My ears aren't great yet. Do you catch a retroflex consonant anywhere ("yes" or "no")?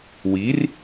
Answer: no